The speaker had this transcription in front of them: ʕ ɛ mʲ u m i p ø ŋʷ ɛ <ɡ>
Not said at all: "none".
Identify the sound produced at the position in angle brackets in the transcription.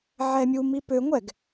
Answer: ɡ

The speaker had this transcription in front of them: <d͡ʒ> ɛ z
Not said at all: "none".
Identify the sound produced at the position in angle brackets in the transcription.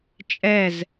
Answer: t͡ʃʼ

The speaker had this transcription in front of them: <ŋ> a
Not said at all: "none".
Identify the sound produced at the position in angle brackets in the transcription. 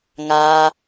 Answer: ŋ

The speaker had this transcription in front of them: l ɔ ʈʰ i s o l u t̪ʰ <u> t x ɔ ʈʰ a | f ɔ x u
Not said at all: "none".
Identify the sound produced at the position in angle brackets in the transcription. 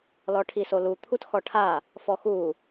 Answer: u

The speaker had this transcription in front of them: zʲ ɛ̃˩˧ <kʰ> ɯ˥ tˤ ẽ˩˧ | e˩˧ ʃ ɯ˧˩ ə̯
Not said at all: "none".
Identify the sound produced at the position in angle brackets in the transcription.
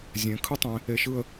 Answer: kʰ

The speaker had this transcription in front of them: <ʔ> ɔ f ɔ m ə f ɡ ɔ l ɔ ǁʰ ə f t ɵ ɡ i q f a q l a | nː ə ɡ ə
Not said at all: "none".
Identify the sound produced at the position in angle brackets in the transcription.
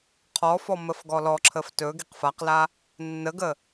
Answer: qʰ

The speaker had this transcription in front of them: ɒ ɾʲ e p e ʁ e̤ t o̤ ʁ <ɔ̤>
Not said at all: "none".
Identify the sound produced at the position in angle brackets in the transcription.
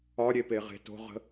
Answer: ə̤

